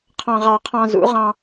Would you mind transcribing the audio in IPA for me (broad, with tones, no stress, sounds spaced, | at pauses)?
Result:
qʰ ɑ̃˧ ʁ ɑ˧ qʰ ɑ̃˧ z ṵ˨˦ ʁ ɑ̃˧